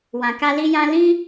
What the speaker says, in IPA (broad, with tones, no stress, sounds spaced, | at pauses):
w ã˨ k a˧ l i˦ j ã˦ l ĩ˦